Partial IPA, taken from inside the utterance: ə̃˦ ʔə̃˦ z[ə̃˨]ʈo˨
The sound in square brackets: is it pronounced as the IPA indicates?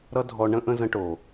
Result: no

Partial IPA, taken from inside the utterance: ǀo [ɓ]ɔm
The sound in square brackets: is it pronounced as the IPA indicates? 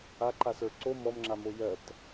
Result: no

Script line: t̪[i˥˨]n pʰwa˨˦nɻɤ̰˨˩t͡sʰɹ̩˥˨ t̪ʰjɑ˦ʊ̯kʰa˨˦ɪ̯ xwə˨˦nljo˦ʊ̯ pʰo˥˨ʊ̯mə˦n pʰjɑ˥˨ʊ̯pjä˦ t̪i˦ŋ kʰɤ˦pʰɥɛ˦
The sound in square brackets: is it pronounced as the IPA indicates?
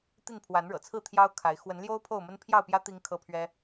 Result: yes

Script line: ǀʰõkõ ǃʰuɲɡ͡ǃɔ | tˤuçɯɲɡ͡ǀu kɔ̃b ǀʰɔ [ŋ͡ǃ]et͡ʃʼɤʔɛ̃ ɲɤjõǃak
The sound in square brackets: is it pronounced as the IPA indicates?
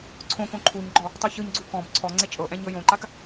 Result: no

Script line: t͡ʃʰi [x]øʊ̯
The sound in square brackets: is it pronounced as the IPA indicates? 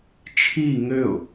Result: no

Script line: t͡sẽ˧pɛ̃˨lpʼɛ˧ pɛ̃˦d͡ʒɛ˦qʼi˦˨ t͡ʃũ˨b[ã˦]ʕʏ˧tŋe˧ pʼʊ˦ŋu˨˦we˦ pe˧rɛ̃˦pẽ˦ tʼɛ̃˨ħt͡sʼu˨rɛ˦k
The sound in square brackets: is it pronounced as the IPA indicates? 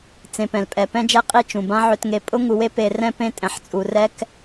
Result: yes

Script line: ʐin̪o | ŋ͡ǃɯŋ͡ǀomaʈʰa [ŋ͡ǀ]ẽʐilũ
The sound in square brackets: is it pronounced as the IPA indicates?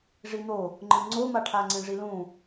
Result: yes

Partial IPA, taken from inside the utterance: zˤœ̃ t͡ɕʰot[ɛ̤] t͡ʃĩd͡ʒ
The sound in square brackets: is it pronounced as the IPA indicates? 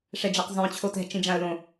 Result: yes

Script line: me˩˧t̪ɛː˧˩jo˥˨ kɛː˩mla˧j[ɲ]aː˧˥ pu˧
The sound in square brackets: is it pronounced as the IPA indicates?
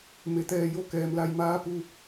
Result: no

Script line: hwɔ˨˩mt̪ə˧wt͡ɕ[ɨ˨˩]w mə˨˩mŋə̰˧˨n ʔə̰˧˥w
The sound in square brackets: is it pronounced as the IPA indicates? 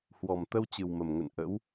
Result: yes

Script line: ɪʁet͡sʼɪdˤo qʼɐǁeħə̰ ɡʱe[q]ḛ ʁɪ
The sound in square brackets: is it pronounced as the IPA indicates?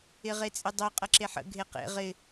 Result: yes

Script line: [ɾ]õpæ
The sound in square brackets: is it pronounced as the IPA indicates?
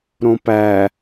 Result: yes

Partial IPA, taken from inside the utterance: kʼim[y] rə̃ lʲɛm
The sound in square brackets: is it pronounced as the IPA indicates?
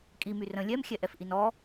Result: yes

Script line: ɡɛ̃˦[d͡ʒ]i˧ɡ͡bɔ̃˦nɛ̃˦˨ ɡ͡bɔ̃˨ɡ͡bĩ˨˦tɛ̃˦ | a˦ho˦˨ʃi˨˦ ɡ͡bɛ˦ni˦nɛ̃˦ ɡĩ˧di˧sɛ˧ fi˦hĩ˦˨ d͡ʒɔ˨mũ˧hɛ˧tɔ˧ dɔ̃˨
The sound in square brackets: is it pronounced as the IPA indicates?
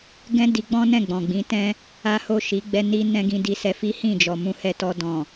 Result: no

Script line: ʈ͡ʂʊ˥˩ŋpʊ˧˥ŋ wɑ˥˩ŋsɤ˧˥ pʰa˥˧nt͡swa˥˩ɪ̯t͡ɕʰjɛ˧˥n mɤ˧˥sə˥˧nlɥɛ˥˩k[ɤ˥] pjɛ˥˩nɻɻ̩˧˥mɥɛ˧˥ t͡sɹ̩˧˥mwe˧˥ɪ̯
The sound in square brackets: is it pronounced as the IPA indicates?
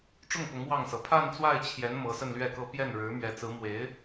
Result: yes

